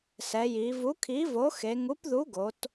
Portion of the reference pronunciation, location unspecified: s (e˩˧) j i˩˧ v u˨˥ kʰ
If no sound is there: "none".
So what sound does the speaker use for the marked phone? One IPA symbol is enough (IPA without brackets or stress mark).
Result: ɛ˩˧